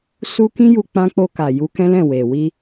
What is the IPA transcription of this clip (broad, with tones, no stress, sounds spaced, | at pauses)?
s u˦ k ĩ˦ j u˧ k͡p ã˧ k͡p o˧ k a˨ j u˧ k ɛ̃˦ l ɛ̃˦˨ w e˨ w i˧